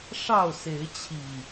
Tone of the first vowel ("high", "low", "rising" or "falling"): falling